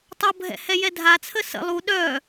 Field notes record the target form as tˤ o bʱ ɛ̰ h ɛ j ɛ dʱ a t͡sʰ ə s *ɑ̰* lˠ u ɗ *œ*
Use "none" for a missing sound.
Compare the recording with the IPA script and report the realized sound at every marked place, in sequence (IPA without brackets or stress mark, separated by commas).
ə̰, œ